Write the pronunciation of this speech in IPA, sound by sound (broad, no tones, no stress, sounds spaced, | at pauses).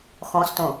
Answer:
x ɔ̃ s t õ